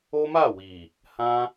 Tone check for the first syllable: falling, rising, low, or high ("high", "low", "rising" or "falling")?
high